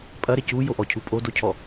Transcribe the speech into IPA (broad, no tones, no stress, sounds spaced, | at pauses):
pʼ ɐ ɾ e c u j o ʔ ɔ cʰ u pʼ o d o cʰ ɔ